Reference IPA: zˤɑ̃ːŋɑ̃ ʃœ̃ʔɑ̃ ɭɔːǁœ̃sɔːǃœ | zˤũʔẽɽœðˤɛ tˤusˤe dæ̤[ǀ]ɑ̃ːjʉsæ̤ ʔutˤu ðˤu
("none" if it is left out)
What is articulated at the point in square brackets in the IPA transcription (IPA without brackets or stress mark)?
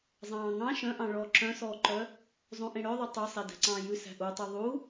ǀ